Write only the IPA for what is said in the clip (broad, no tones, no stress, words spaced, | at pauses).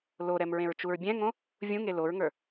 loɾɛm ɹẽɹt͡ʃuɹbʲɛ̃ŋõ | vʲũŋe loɹŋə˞